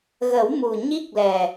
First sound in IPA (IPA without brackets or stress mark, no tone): ɣ